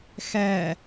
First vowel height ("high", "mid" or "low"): mid